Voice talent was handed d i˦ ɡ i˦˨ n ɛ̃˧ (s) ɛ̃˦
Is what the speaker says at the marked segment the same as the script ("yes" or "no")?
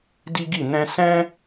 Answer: yes